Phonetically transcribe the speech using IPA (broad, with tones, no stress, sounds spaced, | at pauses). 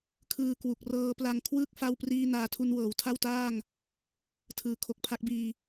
kʰ ɯː˧ k w u˨˩ k̚ r ɤː˦˥ p l a˧ ŋ kʰ w ɯː˥˩ k̚ f a˥˩ w p r iː˥˩ n aː˧ tʰ u˧ n w ɤː˩˦ w tʰ a˥˩ w t aː˥˩ ŋ | tʰ ɯː˩˦ kʰ o˨˩ k̚ pʰ a˦˥ k̚ b iː˧